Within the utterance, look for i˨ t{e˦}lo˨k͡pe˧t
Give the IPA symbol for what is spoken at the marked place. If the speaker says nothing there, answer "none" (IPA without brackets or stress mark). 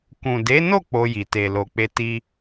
e˨